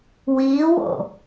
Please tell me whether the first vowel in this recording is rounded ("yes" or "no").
no